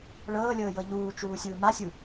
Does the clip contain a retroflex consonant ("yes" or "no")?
yes